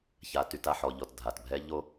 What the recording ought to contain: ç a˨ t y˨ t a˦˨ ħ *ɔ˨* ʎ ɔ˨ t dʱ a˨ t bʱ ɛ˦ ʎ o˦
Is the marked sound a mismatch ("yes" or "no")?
no